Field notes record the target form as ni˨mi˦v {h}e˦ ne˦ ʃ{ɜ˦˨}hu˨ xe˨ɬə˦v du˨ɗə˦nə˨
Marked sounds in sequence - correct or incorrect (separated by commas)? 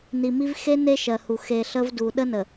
incorrect, incorrect